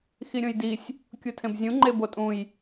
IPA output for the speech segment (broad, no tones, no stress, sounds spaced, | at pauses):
x i ɾʲ õ j d i sʲ | kʲ u tʰ ẽ b zʲ ũ ŋ͡ǃ e b o tʼ ũ j